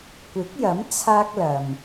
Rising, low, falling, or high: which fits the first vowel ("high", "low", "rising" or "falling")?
rising